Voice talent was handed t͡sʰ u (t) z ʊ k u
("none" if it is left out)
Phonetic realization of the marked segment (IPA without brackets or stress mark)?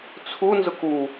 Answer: n